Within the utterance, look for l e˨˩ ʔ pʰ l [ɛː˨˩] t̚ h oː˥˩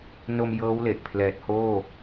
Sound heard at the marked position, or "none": ɛː˨˩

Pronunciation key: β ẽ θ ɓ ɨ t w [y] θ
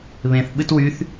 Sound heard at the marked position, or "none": y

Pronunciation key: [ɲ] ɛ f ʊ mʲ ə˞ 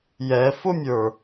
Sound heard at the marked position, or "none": j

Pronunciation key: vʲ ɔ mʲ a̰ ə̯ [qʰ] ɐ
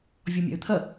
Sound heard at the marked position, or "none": t̪ʰ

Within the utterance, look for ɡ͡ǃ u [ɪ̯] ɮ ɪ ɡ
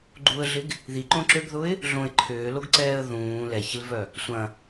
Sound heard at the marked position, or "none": ə̯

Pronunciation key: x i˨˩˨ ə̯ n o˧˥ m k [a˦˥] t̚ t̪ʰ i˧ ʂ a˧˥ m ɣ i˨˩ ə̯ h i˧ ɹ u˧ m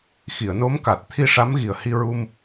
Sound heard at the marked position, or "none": a˨˩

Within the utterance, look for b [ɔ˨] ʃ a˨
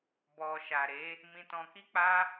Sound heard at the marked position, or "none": ɔ˨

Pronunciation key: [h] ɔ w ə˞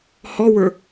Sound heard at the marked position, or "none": h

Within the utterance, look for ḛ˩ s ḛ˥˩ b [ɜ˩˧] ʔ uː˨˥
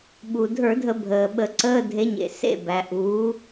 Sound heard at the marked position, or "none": æ˩˧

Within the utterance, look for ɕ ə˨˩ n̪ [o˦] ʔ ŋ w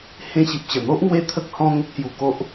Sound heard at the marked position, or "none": o˦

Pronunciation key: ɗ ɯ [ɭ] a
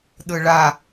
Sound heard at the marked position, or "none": ɭ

